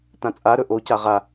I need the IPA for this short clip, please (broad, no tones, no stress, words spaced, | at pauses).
t̪ãt͡sʼa ɾɵʔo caʁa